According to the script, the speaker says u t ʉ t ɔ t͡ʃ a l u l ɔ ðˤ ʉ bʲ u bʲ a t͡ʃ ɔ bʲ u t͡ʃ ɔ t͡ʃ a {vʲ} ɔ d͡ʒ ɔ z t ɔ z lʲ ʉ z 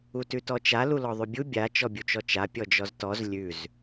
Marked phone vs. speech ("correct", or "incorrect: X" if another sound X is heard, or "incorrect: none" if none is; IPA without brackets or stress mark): incorrect: pʲ